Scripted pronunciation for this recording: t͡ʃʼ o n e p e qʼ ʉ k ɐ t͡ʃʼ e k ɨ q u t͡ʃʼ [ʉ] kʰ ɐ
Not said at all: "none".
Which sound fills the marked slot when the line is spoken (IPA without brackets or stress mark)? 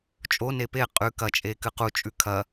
ʉ